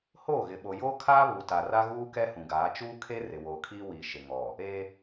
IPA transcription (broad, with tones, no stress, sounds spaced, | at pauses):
h oː˦˨ ɣ ɪ˨ ɓ o˨ j oː˦ kʰ aː˦ β u˨ t a˨ r a˦ ɣ uː˦ k ɛ˦ h ũ˨ ɡ aː˨˦ t͡ʃ uː˦ kʰ e˦ r ɪ˨ w oː˨ kʰ iː˦ w iː˨ ʃ ɪ˨ ŋ ɔ˨ | e˦